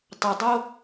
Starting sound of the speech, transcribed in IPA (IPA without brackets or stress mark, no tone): tˤ